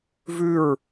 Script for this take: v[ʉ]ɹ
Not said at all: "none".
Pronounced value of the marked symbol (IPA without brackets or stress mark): ʉ